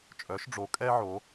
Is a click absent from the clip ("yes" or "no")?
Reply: yes